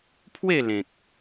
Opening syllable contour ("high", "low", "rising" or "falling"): falling